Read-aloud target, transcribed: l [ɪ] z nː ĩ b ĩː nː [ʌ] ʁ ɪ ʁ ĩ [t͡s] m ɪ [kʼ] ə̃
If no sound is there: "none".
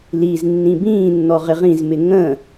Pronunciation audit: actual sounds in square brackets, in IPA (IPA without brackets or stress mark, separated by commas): i, ɔ, z, ŋ